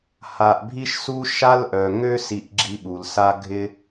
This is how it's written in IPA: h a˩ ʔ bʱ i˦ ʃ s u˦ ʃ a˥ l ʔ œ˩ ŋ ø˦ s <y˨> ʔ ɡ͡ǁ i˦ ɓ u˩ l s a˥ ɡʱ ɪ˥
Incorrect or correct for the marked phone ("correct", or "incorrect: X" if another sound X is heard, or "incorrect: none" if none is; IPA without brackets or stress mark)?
incorrect: i˨